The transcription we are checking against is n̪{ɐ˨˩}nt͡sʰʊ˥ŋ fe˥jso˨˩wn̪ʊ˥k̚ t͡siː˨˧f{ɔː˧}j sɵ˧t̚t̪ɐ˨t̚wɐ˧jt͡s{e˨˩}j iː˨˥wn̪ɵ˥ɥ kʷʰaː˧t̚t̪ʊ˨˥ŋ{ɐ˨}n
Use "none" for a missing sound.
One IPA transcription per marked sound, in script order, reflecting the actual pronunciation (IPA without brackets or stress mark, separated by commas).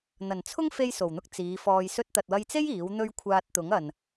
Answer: ɐ˨˩, ɔː˧, e˥, ɐ˨